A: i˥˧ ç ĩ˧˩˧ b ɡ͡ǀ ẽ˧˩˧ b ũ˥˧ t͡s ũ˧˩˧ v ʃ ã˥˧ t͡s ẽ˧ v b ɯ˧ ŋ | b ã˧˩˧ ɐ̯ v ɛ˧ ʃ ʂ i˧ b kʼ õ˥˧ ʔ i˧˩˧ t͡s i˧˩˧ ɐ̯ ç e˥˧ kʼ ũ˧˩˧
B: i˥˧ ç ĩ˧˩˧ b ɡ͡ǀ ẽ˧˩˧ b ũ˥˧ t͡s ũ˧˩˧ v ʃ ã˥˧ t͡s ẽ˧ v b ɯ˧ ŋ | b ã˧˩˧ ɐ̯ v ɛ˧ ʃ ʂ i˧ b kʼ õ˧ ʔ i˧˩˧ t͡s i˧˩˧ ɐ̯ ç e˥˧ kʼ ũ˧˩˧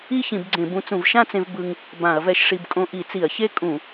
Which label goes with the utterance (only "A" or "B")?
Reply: B